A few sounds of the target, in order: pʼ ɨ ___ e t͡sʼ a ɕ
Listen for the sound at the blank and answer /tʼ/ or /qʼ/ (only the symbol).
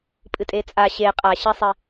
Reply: tʼ